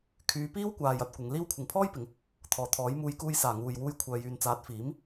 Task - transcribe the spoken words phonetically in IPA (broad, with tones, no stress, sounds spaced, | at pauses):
kʰ yː˨˧ p iː˥ w kʷ aː˨ j ɐ˧ t̚ kʷ ɪ˨˧ ŋ l iː˥ w kʷʰ ɪ˨ ŋ pʰ ɔː˥ j p ɪ˨˧ ŋ | t̪ʰ ɔː˨ t̪ʰ ɔː˨˥ j m uː˧ j k uː˧ j s aː˨˩ ŋ uː˨ j w uː˧ j kʷʰ œː˨ j yː˨ n t͡s aː˨˥ t̚ f iː˨˥ m